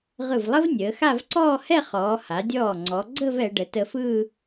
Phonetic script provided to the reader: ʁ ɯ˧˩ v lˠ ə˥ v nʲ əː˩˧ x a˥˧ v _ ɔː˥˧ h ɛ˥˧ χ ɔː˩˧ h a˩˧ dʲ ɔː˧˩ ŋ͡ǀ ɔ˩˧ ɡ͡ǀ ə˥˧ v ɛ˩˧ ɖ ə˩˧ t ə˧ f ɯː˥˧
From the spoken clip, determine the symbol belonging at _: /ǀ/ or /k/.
ǀ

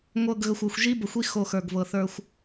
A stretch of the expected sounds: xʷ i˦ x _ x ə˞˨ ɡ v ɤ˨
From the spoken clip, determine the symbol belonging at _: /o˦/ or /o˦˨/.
o˦˨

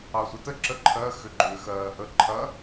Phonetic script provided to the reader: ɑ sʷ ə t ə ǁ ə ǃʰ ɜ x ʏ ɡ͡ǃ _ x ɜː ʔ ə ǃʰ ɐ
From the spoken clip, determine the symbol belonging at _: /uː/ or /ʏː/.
ʏː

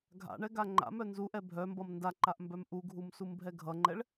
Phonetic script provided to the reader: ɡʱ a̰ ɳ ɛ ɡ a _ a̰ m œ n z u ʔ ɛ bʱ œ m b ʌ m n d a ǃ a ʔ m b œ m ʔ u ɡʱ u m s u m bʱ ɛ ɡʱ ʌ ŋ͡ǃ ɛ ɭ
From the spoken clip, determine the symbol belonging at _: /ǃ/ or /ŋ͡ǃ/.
ŋ͡ǃ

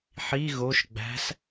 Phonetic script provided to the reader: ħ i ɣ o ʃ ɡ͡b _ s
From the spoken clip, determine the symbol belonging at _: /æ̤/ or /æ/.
æ̤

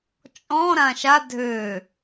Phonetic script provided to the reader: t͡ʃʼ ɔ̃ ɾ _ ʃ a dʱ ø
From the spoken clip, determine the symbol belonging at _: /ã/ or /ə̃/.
ã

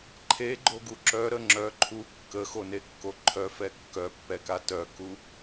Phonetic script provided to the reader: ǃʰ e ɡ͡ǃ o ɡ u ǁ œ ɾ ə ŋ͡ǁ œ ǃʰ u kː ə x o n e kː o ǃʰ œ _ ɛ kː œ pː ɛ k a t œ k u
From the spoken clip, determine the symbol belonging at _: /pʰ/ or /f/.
f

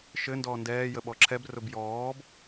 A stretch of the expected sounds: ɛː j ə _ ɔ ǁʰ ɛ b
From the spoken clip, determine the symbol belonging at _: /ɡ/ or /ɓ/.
ɓ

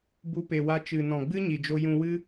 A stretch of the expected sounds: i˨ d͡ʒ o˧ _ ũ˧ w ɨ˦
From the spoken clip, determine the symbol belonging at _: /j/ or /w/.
j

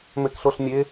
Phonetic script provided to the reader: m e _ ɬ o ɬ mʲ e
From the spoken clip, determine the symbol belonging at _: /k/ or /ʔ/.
k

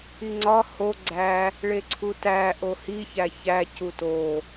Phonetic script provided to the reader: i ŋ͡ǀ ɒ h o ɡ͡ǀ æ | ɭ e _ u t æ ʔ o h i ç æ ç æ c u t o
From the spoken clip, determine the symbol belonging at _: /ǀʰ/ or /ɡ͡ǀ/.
ǀʰ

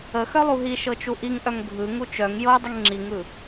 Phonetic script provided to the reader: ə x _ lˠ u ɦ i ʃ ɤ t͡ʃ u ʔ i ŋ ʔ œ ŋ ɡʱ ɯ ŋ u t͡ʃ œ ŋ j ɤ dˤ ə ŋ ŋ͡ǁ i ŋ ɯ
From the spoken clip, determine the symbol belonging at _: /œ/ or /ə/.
œ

